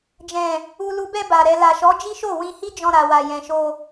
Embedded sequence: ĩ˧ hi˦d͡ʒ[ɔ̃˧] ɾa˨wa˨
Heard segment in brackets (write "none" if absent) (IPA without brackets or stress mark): ɔ̃˧